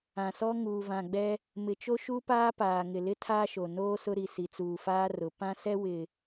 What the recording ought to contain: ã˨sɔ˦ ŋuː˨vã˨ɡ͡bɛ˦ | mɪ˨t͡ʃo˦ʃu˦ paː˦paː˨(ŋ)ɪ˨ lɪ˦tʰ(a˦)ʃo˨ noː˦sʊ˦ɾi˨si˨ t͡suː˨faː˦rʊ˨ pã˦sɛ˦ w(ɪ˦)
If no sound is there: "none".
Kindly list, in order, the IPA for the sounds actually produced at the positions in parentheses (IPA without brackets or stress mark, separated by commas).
ŋ, aː˦, ɪ˨